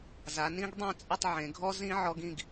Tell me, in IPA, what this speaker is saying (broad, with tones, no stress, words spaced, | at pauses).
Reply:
za˩˧nĩ˦˥ɡdˤẽ˥˨t͡sʼʊ˥˨tˤ ʕẽ˩˧ɡʱɔ˦˥zĩ˦˥ ʕɔ˦˥ɡ ĩ˥˨ɡ